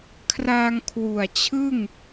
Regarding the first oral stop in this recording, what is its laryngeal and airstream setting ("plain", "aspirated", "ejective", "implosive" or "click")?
aspirated